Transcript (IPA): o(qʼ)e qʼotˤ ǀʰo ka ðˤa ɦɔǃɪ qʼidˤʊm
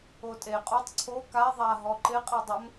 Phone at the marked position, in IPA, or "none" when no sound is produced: tʼ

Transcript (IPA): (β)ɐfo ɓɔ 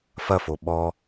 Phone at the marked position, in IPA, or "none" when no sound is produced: f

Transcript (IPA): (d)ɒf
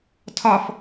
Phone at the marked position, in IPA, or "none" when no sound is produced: tʰ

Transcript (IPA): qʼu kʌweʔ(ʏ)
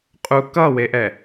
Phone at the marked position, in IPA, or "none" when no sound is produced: ɛ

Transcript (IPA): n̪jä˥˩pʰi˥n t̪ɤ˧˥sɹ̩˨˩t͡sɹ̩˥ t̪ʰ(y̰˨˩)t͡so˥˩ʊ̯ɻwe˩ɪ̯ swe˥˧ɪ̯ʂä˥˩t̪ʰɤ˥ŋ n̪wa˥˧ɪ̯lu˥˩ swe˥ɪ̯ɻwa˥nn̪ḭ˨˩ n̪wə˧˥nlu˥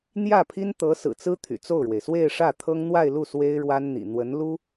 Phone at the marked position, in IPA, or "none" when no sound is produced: y̰˨˩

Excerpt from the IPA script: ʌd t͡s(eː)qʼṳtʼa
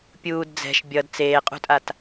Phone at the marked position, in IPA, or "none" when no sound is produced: eː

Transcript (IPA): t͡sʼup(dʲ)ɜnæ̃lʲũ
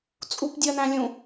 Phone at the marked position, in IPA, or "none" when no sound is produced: dʲ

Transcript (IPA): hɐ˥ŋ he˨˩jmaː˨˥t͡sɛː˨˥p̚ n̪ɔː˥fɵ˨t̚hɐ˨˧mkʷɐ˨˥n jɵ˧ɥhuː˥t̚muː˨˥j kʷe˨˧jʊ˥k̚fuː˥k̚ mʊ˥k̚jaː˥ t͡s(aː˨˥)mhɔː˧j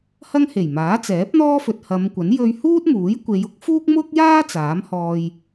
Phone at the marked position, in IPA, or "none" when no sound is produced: aː˨˥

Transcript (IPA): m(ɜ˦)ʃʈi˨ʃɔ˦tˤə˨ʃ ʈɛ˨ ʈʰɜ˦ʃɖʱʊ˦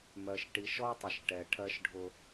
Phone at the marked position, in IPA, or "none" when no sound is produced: ɜ˨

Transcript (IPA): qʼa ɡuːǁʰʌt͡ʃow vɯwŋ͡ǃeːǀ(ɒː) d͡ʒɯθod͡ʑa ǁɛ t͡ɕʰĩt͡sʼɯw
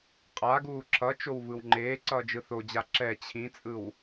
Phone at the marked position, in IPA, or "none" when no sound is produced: ʌː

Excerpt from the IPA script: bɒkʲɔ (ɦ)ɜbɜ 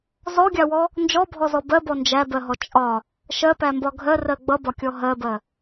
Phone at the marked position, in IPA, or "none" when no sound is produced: ɦ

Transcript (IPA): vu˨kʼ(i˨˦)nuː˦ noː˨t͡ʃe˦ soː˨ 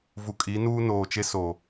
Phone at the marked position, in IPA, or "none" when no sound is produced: i˨˦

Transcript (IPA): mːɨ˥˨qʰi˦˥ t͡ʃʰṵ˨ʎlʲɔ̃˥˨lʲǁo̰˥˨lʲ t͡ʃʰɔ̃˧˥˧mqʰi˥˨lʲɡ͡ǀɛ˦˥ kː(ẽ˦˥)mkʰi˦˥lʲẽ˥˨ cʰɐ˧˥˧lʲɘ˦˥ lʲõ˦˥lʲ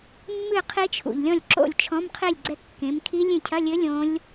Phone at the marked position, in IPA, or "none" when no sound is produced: ẽ˨˦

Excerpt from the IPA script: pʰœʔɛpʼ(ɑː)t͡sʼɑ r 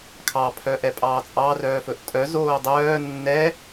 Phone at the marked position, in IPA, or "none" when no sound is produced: ɑː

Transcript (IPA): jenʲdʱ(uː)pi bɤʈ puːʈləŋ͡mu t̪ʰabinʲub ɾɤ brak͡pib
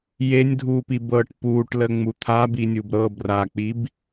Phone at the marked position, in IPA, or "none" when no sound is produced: uː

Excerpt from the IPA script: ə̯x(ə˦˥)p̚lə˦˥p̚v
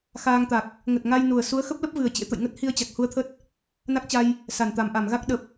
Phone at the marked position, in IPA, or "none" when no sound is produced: ə˦˥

